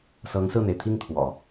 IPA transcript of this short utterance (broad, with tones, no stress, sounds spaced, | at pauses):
s ɤ˧˥ ŋ s ɹ̩˥˩ n̪ e˩ ɪ̯ t̪ʰ i˥˩ ŋ t̪ʰ w ɔ̰˨˩˦